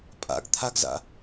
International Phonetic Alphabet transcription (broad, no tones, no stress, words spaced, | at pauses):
pʼa̰ɡ t̪ʰaɡza̰